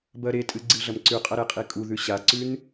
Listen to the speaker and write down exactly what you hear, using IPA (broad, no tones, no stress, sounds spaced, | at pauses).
b ɐ ɾ e tʼ ɨ ɡ͡ǀ ɨ ɮ ɐ m ǀ ʉ qʼ ɐ ɾ e qʼ i kʼ u ð ʉ ɕ a ǀ ʉ n